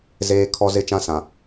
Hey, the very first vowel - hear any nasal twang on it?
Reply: no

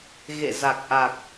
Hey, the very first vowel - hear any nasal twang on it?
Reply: no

